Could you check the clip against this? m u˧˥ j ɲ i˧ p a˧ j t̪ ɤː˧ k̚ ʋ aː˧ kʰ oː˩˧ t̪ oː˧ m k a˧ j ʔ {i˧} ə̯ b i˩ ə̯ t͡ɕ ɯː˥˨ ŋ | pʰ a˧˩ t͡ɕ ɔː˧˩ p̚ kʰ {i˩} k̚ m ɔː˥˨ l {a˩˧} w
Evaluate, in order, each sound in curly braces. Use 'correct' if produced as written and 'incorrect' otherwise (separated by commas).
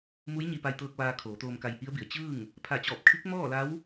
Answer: incorrect, incorrect, incorrect